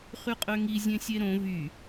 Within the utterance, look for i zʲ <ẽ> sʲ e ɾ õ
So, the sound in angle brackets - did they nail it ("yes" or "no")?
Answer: yes